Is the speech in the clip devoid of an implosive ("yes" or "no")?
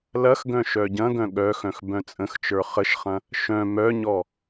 no